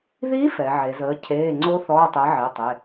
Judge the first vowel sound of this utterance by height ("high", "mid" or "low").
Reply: high